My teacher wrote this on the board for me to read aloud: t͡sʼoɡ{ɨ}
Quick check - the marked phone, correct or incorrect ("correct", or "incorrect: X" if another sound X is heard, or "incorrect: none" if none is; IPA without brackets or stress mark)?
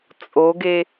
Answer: incorrect: e